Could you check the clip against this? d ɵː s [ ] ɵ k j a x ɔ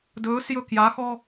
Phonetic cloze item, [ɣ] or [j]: j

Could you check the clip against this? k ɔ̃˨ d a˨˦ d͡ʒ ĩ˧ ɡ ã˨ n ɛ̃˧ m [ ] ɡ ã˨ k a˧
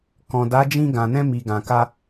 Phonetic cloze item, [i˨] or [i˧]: i˨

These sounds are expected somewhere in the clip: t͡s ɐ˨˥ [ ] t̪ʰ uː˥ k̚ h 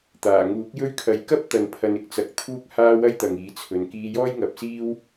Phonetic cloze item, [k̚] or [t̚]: k̚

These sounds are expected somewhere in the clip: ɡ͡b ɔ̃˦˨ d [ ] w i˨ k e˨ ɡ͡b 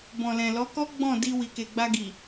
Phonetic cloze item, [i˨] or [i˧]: i˧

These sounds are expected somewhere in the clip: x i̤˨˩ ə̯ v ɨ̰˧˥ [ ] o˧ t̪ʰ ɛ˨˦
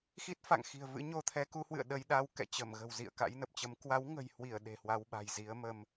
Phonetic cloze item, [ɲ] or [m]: ɲ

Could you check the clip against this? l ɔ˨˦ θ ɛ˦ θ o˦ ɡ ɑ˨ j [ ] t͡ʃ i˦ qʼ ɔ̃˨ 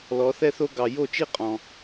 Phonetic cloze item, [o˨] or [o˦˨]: o˦˨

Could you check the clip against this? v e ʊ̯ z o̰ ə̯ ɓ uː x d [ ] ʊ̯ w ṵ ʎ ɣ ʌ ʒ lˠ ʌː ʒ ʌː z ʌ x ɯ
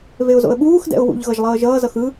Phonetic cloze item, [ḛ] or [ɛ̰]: ɛ̰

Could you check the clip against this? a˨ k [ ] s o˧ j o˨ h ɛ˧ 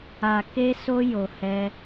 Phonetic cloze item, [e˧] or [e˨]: e˧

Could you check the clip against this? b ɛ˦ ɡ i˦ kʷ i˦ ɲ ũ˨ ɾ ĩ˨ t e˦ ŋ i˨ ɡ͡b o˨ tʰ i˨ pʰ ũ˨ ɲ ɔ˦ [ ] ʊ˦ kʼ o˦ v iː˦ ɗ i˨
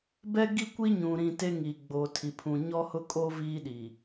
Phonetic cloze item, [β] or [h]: h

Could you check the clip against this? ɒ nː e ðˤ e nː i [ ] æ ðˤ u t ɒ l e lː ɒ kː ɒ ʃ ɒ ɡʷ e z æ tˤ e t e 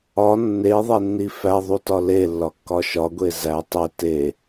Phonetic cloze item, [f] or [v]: f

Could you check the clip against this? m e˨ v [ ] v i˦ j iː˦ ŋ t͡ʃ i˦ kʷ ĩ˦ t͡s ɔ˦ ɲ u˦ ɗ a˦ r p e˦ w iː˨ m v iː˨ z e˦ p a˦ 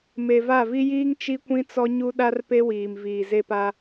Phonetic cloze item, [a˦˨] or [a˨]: a˦˨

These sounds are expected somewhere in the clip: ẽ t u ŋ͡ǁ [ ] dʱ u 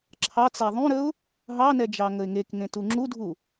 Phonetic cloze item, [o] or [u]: u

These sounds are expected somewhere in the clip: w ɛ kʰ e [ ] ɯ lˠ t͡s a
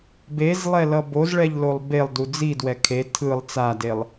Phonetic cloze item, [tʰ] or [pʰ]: tʰ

